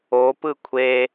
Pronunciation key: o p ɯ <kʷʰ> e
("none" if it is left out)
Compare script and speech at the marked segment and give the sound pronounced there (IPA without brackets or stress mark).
kʷʰ